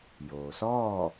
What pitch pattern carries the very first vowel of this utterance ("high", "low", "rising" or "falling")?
low